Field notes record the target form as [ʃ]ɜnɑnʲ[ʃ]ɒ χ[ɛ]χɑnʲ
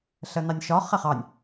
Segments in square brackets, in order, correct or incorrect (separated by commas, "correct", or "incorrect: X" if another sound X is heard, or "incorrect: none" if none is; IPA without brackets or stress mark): incorrect: ɬ, correct, correct